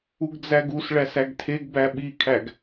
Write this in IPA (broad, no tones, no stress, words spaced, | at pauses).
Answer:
uɡd͡zæɡusɭæs æɡtʰeɡbæ ɓikʰæɡ